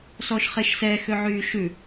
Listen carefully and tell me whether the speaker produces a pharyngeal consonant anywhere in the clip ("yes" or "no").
yes